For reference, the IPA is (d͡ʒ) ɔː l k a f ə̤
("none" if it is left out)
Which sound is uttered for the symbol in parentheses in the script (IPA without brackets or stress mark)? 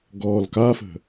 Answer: ɡ